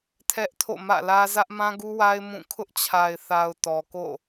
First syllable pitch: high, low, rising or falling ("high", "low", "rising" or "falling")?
high